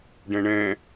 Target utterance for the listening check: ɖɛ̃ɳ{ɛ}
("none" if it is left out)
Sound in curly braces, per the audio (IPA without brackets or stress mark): ɛ̃